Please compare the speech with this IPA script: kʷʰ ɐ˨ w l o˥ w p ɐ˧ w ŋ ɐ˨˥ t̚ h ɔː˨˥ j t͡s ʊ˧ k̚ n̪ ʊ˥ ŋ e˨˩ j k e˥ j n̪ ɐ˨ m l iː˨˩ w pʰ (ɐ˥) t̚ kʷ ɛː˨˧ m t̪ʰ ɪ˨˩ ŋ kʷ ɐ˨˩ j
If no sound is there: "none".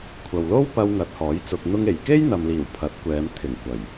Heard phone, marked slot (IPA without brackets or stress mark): ɐ˨˥